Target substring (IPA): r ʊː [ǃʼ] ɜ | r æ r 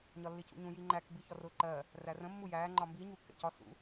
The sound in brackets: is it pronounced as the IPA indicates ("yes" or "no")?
no